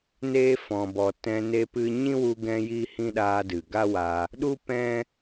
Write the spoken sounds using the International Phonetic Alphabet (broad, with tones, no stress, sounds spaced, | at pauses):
n eː˧ f ɔ̃˨ b ɔ˨ t ɛ̃˧ n e˧ p ɨ˧ ɲ ĩ˦ w u˧ ɡ ɛ̃˧ j iː˦ h ĩ˦ ɗ aː˧ d ɨ˨ ɡ a˦ w a˧ | ɗ u˦ p ɛ̃˦